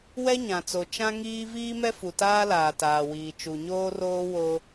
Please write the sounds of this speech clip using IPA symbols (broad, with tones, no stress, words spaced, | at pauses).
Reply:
wɛ˦ɲã˨t͡so˨ t͡ʃã˦ŋiː˦ viː˦mɛ˦fu˨ taː˦laː˨taː˨wiː˨ t͡ʃu˨ɲoː˦roː˦ wo˦